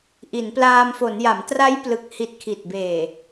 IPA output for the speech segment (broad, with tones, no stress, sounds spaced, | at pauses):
ʔ i˩˦ n p l aː˧ m f o˩˦ n j a˩˦ m t r a˦˥ j p l ɯ˨˩ k̚ h i˨˩ t̚ kʰ i˨˩ t̚ b eː˨˩